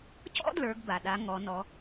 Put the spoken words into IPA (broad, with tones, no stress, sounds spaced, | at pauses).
c ɔ̰˥ d l ə˞˩˧ ɡ b a˩ ɗ a˩˧ ŋ ɔ˩˧ n ɔ˩˧